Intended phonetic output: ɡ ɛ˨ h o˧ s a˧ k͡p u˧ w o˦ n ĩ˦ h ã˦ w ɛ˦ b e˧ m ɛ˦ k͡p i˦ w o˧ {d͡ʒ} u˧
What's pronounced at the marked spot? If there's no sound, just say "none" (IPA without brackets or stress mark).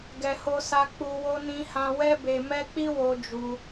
d͡ʒ